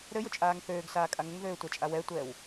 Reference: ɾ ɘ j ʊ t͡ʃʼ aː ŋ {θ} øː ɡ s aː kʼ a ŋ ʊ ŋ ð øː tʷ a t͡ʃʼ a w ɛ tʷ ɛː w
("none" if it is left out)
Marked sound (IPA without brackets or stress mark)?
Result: θ